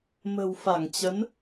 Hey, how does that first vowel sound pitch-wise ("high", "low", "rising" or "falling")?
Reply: low